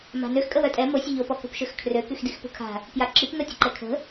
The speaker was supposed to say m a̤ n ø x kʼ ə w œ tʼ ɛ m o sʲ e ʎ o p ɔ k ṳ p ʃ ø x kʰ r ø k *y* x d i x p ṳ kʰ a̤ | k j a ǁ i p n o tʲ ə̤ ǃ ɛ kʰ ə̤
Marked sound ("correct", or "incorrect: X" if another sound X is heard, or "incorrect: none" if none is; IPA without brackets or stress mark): correct